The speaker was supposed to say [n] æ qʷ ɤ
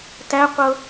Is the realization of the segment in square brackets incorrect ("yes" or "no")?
yes